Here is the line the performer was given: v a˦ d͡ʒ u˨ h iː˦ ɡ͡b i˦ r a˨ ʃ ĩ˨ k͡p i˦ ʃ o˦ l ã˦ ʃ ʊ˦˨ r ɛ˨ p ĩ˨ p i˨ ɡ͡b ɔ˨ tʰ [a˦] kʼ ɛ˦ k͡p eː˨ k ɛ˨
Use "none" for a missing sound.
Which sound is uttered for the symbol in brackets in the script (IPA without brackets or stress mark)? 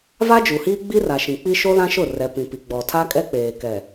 a˦